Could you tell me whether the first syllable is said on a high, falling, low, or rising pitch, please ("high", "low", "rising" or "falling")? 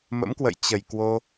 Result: rising